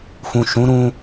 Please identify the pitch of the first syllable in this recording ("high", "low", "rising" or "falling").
low